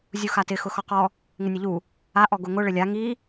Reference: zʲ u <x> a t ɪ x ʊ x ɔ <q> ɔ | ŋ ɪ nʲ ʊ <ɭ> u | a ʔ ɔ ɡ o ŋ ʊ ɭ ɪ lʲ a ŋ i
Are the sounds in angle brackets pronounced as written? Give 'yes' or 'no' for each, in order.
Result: yes, yes, no

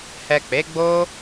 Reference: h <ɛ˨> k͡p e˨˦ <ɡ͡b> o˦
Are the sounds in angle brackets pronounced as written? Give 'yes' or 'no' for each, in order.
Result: yes, yes

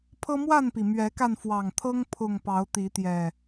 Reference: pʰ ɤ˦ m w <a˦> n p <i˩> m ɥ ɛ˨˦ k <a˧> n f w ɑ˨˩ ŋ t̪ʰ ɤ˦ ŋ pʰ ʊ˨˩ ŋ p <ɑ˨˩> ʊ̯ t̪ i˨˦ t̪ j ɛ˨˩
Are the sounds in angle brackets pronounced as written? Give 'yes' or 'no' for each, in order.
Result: no, yes, yes, no

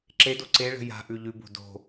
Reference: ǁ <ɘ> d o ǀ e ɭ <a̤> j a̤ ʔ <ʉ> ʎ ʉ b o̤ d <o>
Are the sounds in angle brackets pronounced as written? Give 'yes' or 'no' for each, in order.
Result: no, no, yes, no

